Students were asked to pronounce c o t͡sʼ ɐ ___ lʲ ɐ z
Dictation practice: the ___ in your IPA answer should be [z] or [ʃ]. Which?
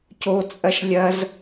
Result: ʃ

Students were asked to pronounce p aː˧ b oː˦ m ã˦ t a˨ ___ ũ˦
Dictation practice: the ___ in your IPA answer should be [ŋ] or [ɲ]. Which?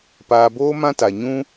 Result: ɲ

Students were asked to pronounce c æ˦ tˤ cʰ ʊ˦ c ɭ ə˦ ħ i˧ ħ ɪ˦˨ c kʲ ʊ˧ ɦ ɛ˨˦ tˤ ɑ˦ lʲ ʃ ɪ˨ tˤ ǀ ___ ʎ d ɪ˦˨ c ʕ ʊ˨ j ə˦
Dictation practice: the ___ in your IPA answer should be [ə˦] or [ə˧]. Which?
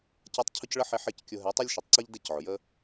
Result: ə˦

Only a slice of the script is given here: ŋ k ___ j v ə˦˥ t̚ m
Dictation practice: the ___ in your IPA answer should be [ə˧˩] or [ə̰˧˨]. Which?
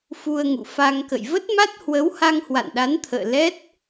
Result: ə̰˧˨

